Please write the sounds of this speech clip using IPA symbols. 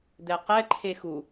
d̪ ɛ q ɛ ǃʰ e x u

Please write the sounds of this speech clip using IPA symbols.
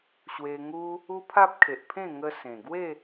ɕ w e˧ ŋ u˦ | u˦ pʰ a˦ p̚ kʰ e˨ ʔ pʰ ẽ˥˧ ŋ ə˧ s ẽ˨˩ ɡ w e˥˧

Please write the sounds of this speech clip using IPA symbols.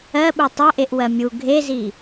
ɜ ɓ u tˤ ɐ ʔ e ʔ w ɜ mʲ u ɡʱ e z i

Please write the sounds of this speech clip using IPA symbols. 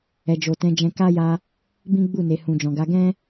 ɛ˨ d͡ʒ o˨ t ɛ̃˨˦ d͡ʒ ɛ̃˧ k a˦ j a˧ | b ĩ˦ ɡ͡b u˦˨ n e˨ h ũ˨ d͡ʒ ɔ̃˨ ɡ a˨˦ ɡ ɛ̃˦

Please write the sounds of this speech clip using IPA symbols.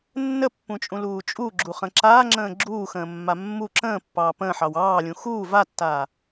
nː ə pː ũ t͡ʃʼ ũ l uː t͡ʃʼ u ɡ͡ǁ u χ ə̃ ǁ aː ŋ͡ǁ ə̃ː ɡ͡ǁ uː x ə̃ː mː a mː u ǁ ə̃ː pː ɑː p ə̃ː ħ ɑ w ɑː lʲ ũ x uː v a tː aː

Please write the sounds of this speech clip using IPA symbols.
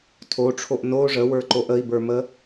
tʰ o ʈ͡ʂʰ o ʔ n o ʐ ə w ə˞ ǃ o ʔ ə i̯ b ə˞ m ə

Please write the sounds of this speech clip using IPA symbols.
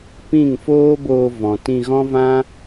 p ĩ˦˨ ŋ f oː˦ b oː˧ v ɔ̃˨ t ĩ˧ ɣ ɔ̃˦ v ã˦

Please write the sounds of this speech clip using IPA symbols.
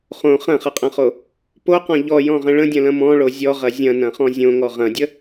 χ õ χ ɐ̃ χ ɐ qʼ ɐ̃ χ o | p o q ɔ̃ ʎ ɔ j ɔ̃ ʁ ə̃ ɭ ə̃ dʲ ɐ̃ l ɐ̃ m ɔ̃ ɭ o zʲ ɔ ʁ ɐ zʲ ɐ̃ n ɐ̃ χ ɔ̃ zʲ õ ŋ ɔ ʁ ɐ̃ dʲ ə

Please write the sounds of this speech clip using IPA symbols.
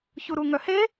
ç u ɾ u ŋ œ h e

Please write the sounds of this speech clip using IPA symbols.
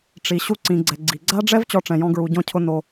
ʈ͡ʂ i˨ ɕ u˧ ǀ ĩ˨ ɡ͡ǀ ɛ˨ ɡ͡ǀ i˨ ɡ͡ǀ a˦ ɖ͡ʐ ɛ˦ v t͡ɕ ɔ˧ ʈ͡ʂ ɛ̃˨ j ɔ̃˧ ɡ ɹ u˨ ɟ ɔ̃˧ cʰ ʊ˧ n o˧

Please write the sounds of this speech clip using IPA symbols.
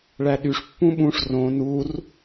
ɭ æ ɗ y ʂ pː ũ ɓ ũ ʂ r õ n u r

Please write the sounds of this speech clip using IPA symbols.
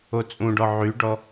o t͡sʼ ũ ɖ ɔ ʕ y ɖ ɔ

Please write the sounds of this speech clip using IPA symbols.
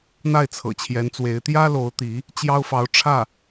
n̪ a˥˩ ɪ̯ t͡sʰ ɤ̰˨˩ t͡ɕʰ j ɛ˧˥ n t͡s w e˧˥ ɪ̯ t̪ j ä˥ l o˧˥ ʊ̯ t̪ i˧˥ | t͡ɕ j ɑ˥ ʊ̯ f ɑ˧˥ ʊ̯ ʈ͡ʂʰ ä˥˩

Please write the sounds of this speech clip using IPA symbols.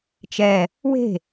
t͡ʃ ɛ | w e̤

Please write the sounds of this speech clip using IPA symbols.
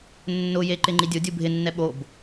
nː ʊ j e ǃ ɪ ŋ͡ǃ i dʲ ʊ dʲ u bʱ ɪ nː ɛ ɓ o b

